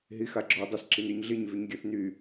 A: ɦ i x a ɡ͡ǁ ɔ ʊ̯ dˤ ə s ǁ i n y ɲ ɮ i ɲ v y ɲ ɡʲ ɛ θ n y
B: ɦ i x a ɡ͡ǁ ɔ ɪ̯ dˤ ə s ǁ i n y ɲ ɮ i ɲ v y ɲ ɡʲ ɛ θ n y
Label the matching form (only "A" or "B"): B